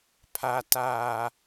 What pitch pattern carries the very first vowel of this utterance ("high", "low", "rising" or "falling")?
high